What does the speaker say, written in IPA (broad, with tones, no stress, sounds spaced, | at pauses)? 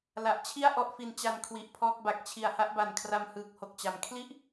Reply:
l a˨˩ ʔ t͡ɕʰ i˥˩ a̯ ʔ ɔ˦˥ ʔ f i˧ n t͡ɕ a˧ n kʰ w i˨˩ ʔ pʰ ɔː˥˩ k̚ b a˨˩ k̚ t͡ɕʰ i˨˩ a̯ h a˥˩ ʔ b a˨˩ n kʰ r a˧ m h ɯː˨˩ k̚ h o˨˩ k̚ t͡ɕ a˩˦ m kʰ l i˥˩ ʔ